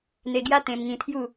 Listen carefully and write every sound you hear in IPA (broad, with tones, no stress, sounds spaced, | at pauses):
n̪ e˧ ɡ j a˦ t̪ ẽ˧ m ŋ ĩ˧ t̪ʰ j u˥˧